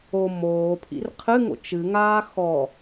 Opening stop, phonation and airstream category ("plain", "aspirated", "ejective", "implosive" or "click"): aspirated